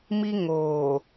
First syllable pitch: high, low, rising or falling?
high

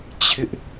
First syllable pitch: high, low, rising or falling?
high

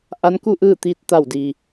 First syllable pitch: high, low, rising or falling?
rising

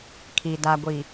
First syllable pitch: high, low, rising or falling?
low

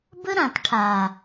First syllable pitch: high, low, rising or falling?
high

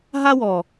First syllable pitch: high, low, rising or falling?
high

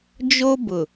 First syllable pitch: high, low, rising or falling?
high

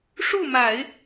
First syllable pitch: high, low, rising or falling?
falling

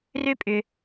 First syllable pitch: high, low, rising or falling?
high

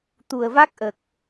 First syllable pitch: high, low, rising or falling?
low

